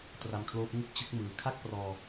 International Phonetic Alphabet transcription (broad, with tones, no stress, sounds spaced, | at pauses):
t r a˧ m kʰ l oː˦˥ p̚ ŋ u˥˩ k̚ t͡ɕ ɯ˥˩ k̚ m ɯː˨˩ kʰ a˥˩ k̚ p r ɔː˧